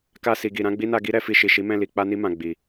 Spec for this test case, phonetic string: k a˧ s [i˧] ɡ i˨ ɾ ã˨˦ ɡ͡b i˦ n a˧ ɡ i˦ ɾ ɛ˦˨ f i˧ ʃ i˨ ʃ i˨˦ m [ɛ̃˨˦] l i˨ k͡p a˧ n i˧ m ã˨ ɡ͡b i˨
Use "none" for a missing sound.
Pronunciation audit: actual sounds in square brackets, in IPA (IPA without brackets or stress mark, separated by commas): i˨, ɛ̃˦˨